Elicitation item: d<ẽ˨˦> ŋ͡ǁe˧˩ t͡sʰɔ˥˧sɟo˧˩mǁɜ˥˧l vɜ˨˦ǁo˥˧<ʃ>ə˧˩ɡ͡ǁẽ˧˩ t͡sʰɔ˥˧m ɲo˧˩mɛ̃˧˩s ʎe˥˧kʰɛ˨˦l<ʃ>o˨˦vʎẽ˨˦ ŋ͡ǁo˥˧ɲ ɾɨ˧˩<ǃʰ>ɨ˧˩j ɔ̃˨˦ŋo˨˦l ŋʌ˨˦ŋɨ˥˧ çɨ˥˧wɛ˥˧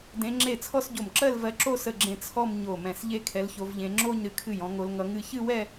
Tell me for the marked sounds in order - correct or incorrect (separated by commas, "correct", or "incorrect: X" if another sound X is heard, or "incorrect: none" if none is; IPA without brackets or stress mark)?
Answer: correct, incorrect: s, incorrect: ç, incorrect: kʰ